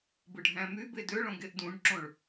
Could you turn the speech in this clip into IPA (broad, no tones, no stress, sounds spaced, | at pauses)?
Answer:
b ɯ ɖʱ æ̃ m y b e d ø ɭ õ ɡ e ʔ d ũ ɖ ǁ õ ɭ